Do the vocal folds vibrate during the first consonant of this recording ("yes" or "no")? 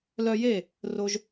yes